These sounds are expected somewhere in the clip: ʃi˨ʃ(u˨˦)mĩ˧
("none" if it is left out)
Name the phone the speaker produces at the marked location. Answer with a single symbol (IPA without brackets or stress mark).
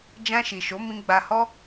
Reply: o˨˦